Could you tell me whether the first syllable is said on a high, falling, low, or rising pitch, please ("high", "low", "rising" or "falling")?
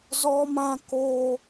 high